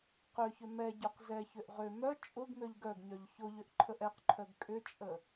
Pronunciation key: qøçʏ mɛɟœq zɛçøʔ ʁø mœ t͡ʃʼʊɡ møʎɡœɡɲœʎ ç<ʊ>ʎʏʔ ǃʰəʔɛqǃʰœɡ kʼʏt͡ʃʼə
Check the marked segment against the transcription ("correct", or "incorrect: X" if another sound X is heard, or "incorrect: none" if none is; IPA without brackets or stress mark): correct